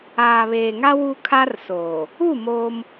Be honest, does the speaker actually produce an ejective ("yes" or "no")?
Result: no